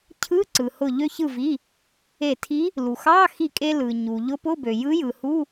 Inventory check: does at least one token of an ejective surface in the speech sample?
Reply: yes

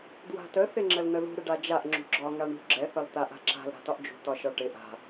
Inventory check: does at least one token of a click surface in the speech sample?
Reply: yes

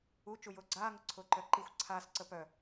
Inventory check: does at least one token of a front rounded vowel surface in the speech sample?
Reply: yes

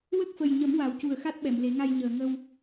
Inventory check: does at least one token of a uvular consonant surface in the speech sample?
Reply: no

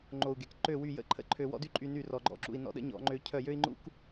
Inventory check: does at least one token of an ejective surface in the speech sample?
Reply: yes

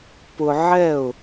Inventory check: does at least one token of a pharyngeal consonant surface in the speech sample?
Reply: yes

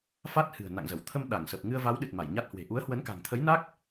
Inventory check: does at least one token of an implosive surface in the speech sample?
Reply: yes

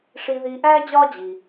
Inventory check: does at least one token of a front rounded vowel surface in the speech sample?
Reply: no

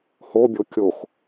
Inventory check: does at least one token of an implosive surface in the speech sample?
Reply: no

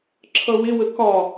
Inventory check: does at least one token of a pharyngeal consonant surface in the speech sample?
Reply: no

